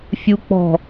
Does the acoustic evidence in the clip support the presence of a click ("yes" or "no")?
no